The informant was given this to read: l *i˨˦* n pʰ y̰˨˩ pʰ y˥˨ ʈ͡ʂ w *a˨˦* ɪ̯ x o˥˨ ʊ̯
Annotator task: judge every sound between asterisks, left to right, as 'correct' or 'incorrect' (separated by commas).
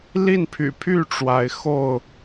incorrect, correct